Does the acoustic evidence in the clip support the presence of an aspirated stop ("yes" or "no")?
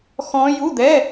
no